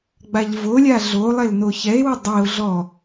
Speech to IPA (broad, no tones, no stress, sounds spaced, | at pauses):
ɡ͡b a ʎ v o lʲ a ɮ o lˠ e l n o ç ɛ e̯ w ʊ dˤ i o̯ ɮ ɔ